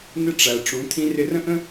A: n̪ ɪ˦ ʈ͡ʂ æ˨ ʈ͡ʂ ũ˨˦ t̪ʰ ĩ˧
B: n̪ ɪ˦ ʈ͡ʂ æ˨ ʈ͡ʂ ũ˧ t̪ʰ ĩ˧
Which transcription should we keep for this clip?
A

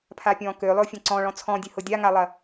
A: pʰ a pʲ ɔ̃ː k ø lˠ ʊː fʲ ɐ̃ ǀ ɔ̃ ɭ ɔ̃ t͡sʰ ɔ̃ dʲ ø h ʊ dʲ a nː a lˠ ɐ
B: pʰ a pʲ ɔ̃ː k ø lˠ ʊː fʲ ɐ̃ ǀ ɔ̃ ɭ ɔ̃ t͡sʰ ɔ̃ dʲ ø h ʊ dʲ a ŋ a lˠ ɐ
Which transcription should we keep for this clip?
B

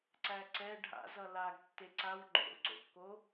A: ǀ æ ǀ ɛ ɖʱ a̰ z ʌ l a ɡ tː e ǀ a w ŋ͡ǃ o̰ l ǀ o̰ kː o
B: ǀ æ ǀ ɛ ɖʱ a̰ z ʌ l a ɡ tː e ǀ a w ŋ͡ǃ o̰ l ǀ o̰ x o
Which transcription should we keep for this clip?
A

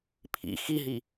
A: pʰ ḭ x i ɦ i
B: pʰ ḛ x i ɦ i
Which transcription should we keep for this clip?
A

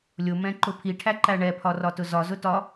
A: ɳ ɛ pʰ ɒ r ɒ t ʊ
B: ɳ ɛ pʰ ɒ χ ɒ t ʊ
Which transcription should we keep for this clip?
A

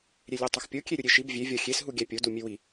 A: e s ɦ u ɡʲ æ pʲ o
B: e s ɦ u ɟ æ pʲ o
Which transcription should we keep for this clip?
A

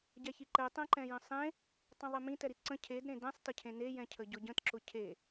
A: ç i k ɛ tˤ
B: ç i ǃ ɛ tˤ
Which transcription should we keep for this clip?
B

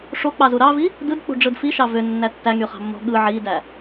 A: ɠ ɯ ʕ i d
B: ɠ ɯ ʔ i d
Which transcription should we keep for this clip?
A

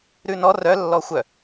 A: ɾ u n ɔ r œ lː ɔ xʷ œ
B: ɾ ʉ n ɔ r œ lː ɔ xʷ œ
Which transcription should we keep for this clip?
B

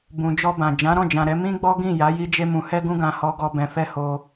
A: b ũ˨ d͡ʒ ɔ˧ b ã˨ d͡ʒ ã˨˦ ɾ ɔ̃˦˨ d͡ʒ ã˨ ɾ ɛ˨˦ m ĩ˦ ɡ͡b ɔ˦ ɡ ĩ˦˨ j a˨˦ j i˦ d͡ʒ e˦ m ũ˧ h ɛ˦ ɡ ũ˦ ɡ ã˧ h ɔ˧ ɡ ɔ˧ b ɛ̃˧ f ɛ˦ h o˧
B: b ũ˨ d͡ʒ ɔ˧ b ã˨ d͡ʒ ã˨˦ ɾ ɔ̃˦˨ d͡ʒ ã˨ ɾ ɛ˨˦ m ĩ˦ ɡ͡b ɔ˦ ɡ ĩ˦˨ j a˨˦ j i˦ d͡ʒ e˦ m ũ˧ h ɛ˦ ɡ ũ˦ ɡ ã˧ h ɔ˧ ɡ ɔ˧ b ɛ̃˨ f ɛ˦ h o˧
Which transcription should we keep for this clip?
A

